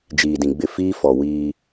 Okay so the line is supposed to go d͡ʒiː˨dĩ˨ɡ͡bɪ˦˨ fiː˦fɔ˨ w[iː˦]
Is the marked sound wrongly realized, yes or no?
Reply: no